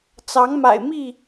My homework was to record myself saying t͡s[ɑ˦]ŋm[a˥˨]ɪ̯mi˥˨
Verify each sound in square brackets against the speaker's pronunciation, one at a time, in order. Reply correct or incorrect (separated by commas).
incorrect, incorrect